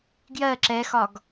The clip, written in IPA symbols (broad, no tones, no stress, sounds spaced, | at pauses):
ɡ j ɜ ǁ ɛ x ɒ ɡ